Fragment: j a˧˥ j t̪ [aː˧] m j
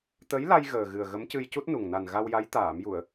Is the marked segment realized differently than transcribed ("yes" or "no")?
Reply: yes